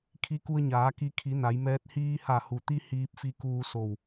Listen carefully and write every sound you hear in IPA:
kʰ i˧˥ k u˧ ə̯ ɲ aː˩˧ k i˧ kʰ i˩˧ n a˩˧ j m ɛː˧˥ t̚ h iː˧ h a˧˩ h u˩ t̪ i˧ h iː˧ p̚ f i˧ k uː˧ s o˧˩ w

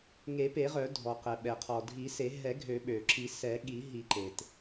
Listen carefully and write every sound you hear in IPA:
ŋ e˨˩˦ p e˨˩˦ ʁ œ˨˩˦ dʱ ɔ˩ q ɛ˩ ɓ ɛ˩ qʰ ɔ˩ dʱ i˨˩˦ s e˨˩˦ ɦ ɛ˨˩˦ ɡʱ ø˨˩˦ ɓ ø˩ ǁ i˨˩˦ s ɛ˨˩˦ ɠ i˨˩˦ ɦ i˨˩˦ ǃ e˩ t

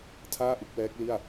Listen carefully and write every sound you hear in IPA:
tʰ aː˥˩ ʔ ɯ˥˩ k̚ w ɛː˦˥ k̚ l i˥˩ a̯

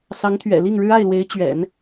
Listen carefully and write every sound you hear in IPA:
s ɑ˧˥ ŋ t̪ʰ ɥ ɛ̰˨˩ l i˥˩ ŋ ɻ ɻ̩˥ a˥˩ ɪ̯ l w e˧˥ ɪ̯ t͡ɕ ɥ ɛ̰˨˩˦ n

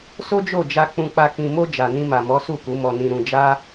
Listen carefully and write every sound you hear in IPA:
s o˦ d͡ʒ o˦˨ d͡ʒ a˧ k͡p ũ˧ k͡p a˧ k ĩ˨ m o˧ d͡ʒ a˨ n ĩ˧ m a˨ m ɔ˨˦ s u˦˨ k u˨˦ m ɔ˧ n ĩ˧ ɾ ũ˧ d͡ʒ a˦

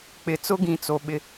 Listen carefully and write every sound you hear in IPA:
k͡p ɪ˨ t͡s ʊ˦ ɡ ĩ˨ t͡s o˨ ɓ ɪ˦˨

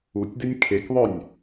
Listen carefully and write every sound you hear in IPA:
u tʲ d e nʲ kʰ e k ðˤ œ nʲ

